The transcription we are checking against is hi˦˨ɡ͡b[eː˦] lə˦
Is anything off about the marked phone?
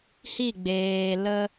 yes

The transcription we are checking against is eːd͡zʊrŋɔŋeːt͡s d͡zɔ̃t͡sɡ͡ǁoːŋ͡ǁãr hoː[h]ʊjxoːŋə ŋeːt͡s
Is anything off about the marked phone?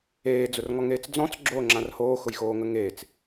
yes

